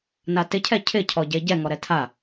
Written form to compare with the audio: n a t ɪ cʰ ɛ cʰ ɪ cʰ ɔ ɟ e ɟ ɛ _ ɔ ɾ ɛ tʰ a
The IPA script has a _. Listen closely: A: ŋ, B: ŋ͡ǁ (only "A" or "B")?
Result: A